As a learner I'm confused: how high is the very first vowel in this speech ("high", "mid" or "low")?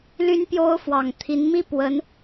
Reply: high